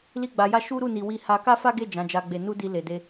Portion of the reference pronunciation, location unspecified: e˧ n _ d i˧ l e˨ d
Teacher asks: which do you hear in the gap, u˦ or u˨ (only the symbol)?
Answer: u˦